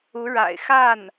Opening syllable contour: rising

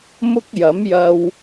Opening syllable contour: high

